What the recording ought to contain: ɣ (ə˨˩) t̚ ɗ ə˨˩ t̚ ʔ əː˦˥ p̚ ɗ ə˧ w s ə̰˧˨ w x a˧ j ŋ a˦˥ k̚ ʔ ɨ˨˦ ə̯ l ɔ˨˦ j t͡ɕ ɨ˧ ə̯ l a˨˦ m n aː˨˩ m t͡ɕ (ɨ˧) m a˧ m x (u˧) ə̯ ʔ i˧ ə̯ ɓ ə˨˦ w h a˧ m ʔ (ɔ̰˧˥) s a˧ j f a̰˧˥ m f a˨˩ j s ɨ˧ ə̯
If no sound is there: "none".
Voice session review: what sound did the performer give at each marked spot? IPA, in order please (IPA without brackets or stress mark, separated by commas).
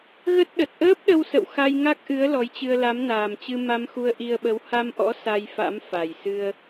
ə˦˥, ɨ˧, u˧, ɔ̰˧˥